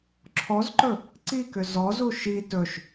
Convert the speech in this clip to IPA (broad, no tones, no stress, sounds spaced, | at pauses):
ǁʰ ɔ z ǃ ɵ | ǀ i k ʏ z ɔ z u ʃ i t ɵ ʃ